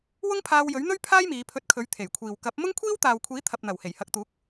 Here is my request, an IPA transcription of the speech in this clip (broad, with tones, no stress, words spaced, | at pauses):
wʊ˥ŋpʰaː˧wjɵ˨˥ɥn̪ɵ˥ɥ pʰaː˥jmiː˨˧ pʰɵ˧t̚kʰɵ˨˥ɥ t̪ʰe˨˩jkʷʰiː˨w kɐ˨˥p̚ mʊ˥ŋkʷʰiː˥wt̪aː˨wkʷʰiː˨˥ t̪ʰɐ˨p̚n̪ɐ˨˩w he˨˩jhɐ˨k̚t̪uː˨˥k̚